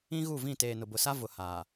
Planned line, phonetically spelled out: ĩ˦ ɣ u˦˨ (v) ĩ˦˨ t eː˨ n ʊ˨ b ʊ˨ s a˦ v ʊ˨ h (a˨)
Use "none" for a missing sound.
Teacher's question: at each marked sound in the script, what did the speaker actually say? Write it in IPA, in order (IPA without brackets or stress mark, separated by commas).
v, aː˨